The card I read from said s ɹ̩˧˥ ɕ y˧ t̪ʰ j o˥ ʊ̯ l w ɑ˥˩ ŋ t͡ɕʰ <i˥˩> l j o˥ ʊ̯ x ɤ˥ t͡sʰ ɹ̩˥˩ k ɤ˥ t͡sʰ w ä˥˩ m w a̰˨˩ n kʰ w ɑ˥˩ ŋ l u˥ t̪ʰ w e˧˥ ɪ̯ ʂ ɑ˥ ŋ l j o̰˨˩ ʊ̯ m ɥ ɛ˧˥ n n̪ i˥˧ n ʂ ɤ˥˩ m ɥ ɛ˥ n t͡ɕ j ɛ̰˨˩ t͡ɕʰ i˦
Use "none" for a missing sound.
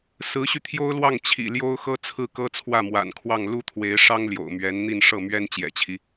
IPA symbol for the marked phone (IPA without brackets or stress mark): ḭ˨˩